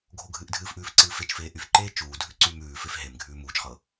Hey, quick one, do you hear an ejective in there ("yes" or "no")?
no